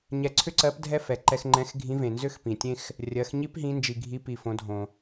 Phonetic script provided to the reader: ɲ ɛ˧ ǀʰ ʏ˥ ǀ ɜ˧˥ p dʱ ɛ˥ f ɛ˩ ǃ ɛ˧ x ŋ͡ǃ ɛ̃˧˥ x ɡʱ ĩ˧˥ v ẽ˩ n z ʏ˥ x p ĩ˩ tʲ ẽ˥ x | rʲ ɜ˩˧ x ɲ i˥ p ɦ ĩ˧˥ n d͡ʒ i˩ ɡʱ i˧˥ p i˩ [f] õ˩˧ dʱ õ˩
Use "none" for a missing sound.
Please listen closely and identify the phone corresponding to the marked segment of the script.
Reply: f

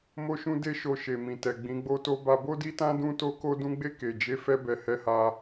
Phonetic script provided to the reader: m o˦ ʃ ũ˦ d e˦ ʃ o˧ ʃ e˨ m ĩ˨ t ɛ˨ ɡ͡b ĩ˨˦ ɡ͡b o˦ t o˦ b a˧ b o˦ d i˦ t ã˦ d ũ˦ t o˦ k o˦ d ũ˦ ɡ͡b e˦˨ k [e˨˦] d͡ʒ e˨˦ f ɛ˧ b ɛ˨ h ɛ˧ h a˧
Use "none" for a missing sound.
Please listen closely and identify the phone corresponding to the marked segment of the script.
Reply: e˨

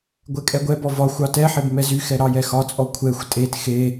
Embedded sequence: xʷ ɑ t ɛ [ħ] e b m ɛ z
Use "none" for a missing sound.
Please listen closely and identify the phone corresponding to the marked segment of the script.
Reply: ħ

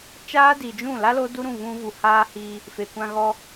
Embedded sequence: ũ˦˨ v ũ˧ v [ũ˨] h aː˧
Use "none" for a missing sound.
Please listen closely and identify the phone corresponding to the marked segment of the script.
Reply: u˨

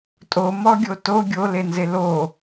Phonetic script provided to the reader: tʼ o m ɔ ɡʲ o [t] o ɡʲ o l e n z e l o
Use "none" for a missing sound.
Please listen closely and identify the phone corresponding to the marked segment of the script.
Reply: t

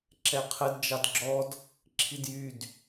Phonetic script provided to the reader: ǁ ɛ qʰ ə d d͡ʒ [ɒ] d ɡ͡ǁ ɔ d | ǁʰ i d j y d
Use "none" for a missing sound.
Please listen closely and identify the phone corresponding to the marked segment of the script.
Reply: ɑ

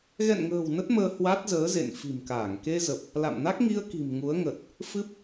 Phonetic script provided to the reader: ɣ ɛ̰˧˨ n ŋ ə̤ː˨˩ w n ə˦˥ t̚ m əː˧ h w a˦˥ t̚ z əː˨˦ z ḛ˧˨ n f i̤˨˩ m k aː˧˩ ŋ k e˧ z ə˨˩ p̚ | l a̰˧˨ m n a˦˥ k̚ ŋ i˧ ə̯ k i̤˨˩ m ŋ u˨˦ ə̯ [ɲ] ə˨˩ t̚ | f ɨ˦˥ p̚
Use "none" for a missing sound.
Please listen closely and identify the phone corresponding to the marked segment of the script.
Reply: ŋ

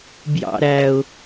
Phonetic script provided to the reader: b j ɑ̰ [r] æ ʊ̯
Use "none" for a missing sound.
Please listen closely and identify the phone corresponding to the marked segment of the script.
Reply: ɾ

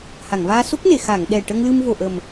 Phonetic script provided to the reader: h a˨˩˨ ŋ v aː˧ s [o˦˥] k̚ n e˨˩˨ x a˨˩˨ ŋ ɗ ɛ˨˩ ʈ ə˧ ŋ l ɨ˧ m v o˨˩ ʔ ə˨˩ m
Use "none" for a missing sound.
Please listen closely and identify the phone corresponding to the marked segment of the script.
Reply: o˦˥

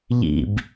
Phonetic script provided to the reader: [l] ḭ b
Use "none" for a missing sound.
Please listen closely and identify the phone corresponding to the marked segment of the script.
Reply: ʎ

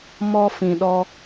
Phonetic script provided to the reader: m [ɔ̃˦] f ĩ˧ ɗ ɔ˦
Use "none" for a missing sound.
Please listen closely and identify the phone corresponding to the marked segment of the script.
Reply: ɔ˦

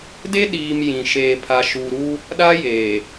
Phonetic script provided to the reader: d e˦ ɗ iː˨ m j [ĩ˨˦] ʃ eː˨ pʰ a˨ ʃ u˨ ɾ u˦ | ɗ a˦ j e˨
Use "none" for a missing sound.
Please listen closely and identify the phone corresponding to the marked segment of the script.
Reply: ĩ˨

